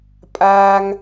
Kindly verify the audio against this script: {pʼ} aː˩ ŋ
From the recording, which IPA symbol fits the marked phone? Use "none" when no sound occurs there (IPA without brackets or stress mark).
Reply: pʼ